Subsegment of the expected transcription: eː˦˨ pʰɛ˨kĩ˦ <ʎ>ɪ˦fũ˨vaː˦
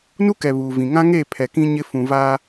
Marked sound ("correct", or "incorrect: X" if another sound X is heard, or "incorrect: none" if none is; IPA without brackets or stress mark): incorrect: ɲ